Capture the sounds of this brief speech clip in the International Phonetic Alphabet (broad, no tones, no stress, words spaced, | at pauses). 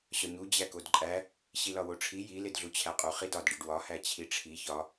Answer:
ɕɒɲu d͡ʑækodǃʼæ | ɕilɒwoʈ͡ʂʰi ji ledɮut͡ɕʰæqʼu χidɒd ɖiɖwɒ hæt͡ɕʰiʈ͡ʂʰi çɒ